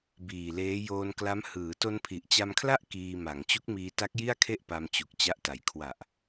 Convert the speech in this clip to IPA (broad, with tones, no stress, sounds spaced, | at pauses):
b iː˨˩ l eː˦˥ j oː˧ n k l a˦˥ m h ɯː˩˦ t o˧ n pʰ i˨˩ ʔ t͡ɕ a˧ m kʰ l a˥˩ ʔ k iː˧ m a˩˦ ŋ t͡ɕ u˦˥ k̚ m iː˧ t a˦˥ k̚ j i˥˩ a̯ kʰ e˥˩ ʔ p a˧ m t͡ɕ u˨˩ k̚ t͡ɕ a˦˥ ʔ t a˨˩ j kʰ w a˨˩ ʔ